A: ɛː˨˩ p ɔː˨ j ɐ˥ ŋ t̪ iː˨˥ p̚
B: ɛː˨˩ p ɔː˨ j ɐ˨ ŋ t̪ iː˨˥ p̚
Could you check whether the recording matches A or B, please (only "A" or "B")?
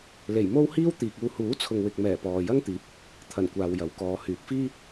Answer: A